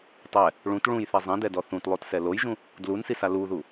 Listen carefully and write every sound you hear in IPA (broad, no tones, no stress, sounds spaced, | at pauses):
tˤ ɛ | ɭ ũ t ɭ ũ j θ ɛ zˤ ẽ d ɛ d ɔ θ ũ t lˠ o t s ɛ l o j ʒ ũ | d l u n s i s a l u ð u